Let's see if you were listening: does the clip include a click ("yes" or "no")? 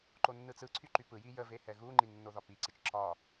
yes